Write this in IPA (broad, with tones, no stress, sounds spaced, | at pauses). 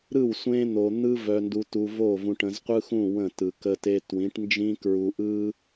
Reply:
ɾ ɯ˦˨ w sʷ ẽ˦ n̪ o˨ n̪ ɯ˦ v œ˨ n d u˨ t u˨ v o˦˨ v ũ˨ ʈ ə̃˨ z qʷ ɯ˦ x ũ˦˨ w ə̃˦˨ t ɯ˨ k ə˦ t e˦ t w ĩ˨˦ ʈ n d͡ʒ ĩ˦ k ɹ u˨ ʔ ɯ˦